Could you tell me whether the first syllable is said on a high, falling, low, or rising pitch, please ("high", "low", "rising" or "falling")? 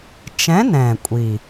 rising